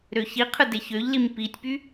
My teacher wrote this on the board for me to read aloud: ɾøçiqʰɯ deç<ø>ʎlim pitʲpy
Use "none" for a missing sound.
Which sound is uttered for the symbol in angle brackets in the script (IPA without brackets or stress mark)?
ø